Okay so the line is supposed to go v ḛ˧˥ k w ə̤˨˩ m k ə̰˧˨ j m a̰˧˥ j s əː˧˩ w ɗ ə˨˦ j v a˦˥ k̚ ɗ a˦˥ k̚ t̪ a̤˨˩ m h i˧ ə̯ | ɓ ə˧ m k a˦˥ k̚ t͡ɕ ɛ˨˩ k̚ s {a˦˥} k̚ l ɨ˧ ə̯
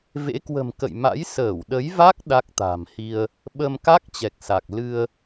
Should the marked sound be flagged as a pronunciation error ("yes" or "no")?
yes